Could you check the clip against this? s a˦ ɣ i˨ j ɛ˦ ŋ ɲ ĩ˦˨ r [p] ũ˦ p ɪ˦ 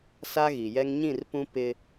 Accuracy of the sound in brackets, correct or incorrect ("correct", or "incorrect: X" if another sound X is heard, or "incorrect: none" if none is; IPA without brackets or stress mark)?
correct